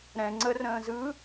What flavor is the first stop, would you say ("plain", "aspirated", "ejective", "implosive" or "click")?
click